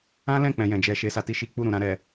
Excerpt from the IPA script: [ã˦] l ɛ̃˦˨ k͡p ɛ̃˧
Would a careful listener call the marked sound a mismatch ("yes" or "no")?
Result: no